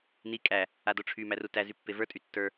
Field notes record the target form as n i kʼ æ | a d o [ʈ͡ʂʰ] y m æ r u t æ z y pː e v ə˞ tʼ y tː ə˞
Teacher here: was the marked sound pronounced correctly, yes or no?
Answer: yes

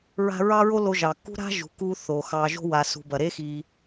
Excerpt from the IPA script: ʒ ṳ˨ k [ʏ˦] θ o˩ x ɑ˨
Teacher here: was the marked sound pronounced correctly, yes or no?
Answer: no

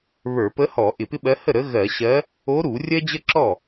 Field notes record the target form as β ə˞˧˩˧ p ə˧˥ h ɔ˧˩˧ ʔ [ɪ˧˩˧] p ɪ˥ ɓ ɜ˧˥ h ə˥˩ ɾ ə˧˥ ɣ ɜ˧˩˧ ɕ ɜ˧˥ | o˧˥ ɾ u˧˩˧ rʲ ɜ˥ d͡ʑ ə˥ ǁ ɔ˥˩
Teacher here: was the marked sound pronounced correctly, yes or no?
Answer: yes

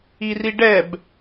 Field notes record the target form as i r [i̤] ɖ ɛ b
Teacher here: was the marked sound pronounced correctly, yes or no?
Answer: no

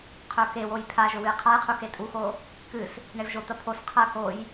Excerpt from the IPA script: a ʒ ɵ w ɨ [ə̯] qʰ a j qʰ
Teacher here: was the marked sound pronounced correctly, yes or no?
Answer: no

